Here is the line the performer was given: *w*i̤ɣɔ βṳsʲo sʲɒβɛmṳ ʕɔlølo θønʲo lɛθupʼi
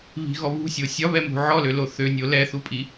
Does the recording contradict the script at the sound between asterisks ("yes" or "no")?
yes